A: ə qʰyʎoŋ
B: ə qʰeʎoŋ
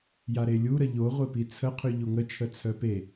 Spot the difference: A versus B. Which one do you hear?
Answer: A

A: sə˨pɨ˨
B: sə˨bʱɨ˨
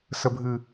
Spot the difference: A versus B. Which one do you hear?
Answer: B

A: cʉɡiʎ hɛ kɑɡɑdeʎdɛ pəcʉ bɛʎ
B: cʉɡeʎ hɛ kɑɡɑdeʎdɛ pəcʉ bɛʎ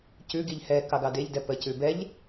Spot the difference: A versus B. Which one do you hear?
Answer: A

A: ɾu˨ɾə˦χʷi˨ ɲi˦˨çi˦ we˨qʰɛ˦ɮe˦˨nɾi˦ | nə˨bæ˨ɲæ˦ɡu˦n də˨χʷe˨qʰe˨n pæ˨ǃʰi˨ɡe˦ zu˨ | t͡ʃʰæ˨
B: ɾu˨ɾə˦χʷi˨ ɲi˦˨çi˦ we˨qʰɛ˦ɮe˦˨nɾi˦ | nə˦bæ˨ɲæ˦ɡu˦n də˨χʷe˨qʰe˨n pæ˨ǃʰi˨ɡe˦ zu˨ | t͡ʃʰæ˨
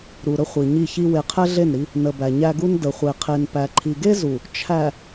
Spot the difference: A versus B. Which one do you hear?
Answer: A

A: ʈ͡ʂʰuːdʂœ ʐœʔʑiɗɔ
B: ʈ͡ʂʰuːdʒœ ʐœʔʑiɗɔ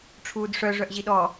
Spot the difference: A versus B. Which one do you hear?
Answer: A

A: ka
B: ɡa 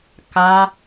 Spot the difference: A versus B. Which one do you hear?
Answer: A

